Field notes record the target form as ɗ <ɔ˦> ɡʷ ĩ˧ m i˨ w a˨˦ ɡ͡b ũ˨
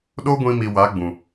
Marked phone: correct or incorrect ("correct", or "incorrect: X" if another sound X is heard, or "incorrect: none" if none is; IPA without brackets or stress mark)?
incorrect: o˦